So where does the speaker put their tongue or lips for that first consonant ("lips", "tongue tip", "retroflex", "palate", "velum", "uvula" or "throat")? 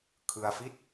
velum